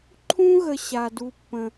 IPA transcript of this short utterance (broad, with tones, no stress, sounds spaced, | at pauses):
ǃʰ ũ˦ ɣ ə˨ ɕ a˨ d u˧ pː ə̃˨